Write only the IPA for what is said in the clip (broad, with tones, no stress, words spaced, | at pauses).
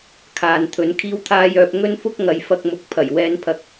kʰaː˨nt̪ʰɵ˨˧n kʰiː˧wt̪ʰaː˧jœː˨p̚ ŋɵ˥nfʊ˥k̚ŋɐ˨˧j fɐ˧k̚mʊ˨˥k̚ pʰɐ˨˩jwɛː˧npʰɐ˧k̚